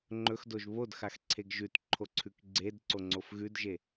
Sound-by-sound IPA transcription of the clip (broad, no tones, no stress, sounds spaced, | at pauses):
ŋ͡ǃ ɵ x d o ʒ β o d x a x ǀʰ e ɡ ʒ ʉ t ǃʰ o ǀʰ ʉ k ɡ͡ǀ e d ǀ o ŋ͡ǀ o f ɣ ʉ d ʒ e